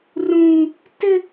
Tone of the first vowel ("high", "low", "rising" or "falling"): high